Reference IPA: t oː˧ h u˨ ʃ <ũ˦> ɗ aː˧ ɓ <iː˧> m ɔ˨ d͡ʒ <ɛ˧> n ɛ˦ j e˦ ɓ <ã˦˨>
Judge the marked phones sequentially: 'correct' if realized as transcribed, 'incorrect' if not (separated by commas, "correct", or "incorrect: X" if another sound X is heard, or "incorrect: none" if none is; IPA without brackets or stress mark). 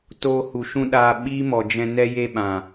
correct, incorrect: iː˦, incorrect: ɛ̃˧, incorrect: ã˨